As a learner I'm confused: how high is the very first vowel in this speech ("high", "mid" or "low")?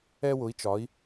mid